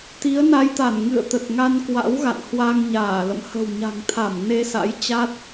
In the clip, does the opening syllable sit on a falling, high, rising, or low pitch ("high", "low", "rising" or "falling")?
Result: rising